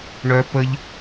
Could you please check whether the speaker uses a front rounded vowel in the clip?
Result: yes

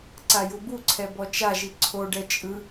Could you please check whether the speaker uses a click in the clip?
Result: yes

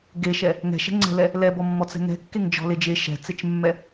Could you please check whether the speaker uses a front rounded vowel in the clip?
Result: no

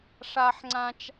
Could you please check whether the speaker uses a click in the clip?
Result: yes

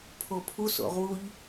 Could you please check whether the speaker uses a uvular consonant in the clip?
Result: yes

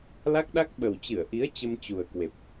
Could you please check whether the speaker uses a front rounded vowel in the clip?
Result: no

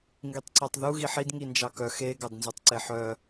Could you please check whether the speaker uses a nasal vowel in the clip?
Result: no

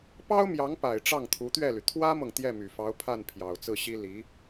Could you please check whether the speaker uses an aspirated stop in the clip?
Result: yes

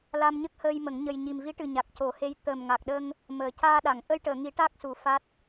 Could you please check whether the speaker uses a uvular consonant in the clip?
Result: no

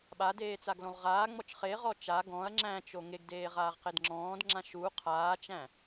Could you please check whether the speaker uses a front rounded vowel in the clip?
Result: no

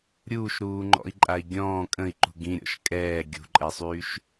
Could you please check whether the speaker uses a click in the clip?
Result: yes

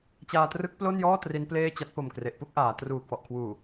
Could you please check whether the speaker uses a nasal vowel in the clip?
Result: no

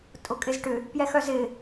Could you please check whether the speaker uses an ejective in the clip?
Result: yes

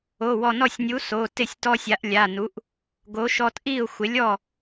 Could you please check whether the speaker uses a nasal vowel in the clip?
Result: no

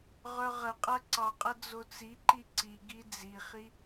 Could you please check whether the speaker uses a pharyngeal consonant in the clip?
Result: no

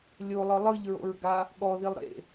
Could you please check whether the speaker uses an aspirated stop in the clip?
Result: no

